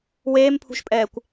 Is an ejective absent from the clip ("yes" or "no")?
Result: no